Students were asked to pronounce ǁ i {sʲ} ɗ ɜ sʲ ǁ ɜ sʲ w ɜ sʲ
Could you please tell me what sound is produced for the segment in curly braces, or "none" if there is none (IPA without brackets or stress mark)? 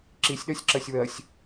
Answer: sʲ